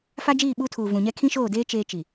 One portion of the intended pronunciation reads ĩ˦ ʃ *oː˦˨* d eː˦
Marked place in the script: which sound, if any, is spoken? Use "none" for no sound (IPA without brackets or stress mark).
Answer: oː˦˨